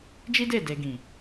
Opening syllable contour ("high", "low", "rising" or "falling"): high